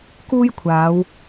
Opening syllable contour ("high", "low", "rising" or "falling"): high